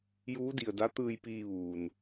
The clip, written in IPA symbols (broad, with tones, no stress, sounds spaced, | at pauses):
j uː˧˥ d i˩ ə̯ d a˧˥ t̪ ɯː˧ j p iː˧ ʋ uː˩ n